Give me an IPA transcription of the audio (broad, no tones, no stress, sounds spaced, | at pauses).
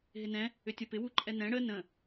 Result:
ɦ ɪ n ɛ̃ | ʏ tʲ ɐ p ɪ w u ǃʼ ɛ n ɛ̃ ɽ ə n ə̃